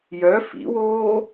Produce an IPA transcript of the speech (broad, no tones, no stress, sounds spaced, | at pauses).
j œ f ḭ w oː